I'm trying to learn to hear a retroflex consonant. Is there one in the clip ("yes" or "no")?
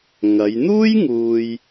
no